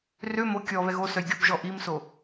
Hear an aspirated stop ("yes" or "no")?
no